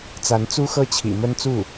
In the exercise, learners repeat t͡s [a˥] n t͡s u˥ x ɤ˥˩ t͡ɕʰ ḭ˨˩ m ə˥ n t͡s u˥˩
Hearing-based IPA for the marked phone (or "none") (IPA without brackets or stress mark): a˧˥